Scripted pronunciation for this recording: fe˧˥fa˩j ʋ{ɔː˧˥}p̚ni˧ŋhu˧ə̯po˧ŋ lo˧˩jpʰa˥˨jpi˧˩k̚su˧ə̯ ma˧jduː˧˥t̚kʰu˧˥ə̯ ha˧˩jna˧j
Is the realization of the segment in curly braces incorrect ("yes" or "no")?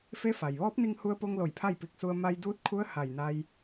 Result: no